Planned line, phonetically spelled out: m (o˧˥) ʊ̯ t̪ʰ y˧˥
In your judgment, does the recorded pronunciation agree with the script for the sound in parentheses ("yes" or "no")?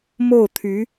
no